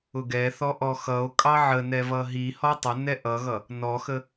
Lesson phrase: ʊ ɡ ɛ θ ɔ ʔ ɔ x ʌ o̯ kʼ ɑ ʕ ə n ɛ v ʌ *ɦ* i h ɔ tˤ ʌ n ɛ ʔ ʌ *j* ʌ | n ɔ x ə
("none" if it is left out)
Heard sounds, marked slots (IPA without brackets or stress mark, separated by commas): ɦ, ɣ